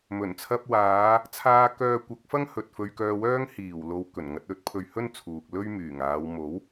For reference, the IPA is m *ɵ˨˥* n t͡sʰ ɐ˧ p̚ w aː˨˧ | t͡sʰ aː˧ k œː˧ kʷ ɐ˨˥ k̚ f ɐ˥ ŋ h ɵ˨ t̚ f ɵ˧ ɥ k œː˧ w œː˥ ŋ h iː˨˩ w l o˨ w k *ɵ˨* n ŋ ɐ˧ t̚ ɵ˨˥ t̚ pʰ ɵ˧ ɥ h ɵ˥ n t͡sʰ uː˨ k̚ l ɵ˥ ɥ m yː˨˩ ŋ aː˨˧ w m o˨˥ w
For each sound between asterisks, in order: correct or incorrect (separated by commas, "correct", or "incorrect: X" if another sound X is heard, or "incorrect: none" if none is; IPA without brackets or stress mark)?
incorrect: ɵ˨˩, incorrect: ɵ˨˩